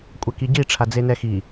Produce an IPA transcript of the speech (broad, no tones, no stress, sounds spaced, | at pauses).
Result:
kʷʼ ɛ k i ɟ i ʈ͡ʂʰ a d͡z e n ɛ x i